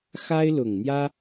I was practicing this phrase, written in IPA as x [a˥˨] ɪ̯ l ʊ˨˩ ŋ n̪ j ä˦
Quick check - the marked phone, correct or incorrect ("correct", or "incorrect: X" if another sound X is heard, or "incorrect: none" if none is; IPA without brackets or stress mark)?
incorrect: a˦